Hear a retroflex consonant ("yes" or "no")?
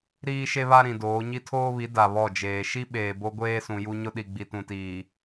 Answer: no